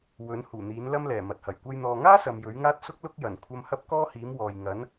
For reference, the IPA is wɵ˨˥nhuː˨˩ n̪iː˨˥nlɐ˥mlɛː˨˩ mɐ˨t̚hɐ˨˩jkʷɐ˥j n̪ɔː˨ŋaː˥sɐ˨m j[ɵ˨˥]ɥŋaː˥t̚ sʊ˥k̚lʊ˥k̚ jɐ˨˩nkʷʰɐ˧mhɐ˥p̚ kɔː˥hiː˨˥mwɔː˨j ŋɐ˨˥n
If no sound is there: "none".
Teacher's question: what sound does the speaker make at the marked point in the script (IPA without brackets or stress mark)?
ɵ˨˥